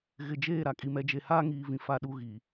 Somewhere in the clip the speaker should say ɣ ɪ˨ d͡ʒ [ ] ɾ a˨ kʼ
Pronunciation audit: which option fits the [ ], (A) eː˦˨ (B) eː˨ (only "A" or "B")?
A